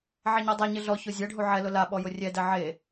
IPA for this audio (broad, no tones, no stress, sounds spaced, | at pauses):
ʕ ɛ ɲ ɔ dˤ a ɲ ɪ ɮ ɔ ç o zʲ ɛ ɖʱ u ʕ ɛ l ʊ l a ɓ ɔ j ʊ rʲ ɛ d ɛ ʕ e